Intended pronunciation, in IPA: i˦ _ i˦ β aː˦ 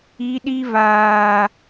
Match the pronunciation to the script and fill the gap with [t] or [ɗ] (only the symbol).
ɗ